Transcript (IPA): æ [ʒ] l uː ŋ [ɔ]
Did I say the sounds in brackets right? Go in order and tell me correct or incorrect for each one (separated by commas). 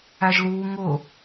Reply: correct, incorrect